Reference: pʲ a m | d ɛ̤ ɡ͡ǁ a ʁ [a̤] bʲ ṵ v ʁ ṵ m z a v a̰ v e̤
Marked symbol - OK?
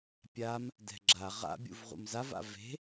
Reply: no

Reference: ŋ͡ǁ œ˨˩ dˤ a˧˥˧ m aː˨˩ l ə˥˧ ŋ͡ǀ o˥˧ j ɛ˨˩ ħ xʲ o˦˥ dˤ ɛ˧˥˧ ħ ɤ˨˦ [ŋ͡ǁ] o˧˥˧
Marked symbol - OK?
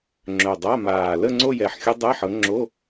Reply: yes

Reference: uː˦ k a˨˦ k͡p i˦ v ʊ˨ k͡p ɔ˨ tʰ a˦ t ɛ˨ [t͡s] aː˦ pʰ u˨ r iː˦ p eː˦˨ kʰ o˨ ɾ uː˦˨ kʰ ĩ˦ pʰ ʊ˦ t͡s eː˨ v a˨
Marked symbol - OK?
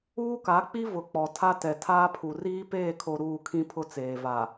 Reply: no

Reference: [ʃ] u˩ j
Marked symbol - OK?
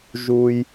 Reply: no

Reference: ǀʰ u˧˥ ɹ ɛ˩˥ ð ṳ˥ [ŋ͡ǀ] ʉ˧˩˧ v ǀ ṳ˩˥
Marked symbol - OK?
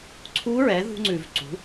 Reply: yes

